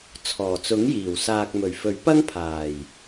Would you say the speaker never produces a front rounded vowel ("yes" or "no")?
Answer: yes